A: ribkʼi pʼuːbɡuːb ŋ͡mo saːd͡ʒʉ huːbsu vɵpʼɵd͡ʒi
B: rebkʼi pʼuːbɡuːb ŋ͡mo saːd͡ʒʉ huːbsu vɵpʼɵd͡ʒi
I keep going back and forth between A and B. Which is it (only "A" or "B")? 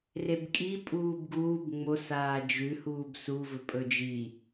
B